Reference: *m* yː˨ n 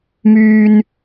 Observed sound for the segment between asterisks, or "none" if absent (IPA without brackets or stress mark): m